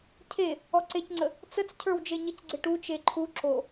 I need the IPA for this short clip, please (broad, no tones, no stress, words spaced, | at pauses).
cʰe | ɔǀecŋ͡ǀə | t͡sət͡scʰə˞w d͡ʒeɲɪcɡ͡ǀɪ ʈu t͡ʃeǃʰu ǁo